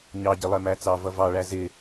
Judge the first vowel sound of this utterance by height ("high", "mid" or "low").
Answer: low